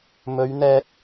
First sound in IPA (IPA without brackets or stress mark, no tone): m